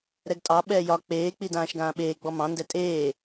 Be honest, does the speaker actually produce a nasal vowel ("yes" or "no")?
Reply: yes